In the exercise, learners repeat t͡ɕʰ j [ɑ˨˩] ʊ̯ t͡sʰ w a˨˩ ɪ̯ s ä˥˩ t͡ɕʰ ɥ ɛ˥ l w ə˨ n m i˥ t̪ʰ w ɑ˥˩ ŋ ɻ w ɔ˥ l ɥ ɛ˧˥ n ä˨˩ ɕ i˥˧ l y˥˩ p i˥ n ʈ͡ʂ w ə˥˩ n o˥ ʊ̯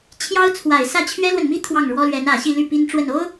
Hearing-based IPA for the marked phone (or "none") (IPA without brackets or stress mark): ɑ˥